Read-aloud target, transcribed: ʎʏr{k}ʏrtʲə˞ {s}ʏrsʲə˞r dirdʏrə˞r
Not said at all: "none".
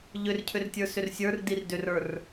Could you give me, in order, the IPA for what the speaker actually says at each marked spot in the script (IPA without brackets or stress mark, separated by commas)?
cʰ, s